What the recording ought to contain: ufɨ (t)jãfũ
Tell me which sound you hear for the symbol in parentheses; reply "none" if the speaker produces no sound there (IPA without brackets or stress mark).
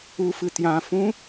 t